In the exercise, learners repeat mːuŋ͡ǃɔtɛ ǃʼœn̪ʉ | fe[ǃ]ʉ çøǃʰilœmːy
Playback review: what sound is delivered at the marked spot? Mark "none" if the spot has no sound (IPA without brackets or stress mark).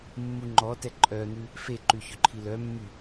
ǃ